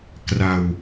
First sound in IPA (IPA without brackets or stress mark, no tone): k